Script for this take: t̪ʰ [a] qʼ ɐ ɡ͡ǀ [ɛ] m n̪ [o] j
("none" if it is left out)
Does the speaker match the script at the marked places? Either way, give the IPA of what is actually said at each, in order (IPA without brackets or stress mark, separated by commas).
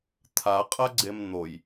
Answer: a, e, o